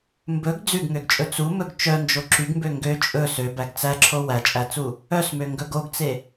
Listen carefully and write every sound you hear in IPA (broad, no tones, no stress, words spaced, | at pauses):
mbɵɡ d͡zʉɡŋøɡt͡ʃʼɵ t͡sumɵɡ t͡ʃœnd͡ʒo ǁyɡmbø ŋɡø t͡ʃʼɵ søbæɡ t͡sæǁʰo wæt͡ʃʼæt͡su | œsmøŋɡɵɡ oɡt͡se